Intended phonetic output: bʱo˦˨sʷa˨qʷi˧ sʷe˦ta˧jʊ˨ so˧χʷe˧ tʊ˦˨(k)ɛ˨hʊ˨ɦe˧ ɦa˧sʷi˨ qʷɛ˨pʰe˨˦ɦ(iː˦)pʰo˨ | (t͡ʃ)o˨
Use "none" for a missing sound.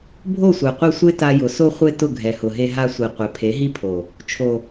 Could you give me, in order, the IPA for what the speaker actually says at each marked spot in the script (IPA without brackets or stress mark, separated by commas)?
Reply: ɡʱ, i˦, t͡ʃʰ